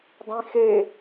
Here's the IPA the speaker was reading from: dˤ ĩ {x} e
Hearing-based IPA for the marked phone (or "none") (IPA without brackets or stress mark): x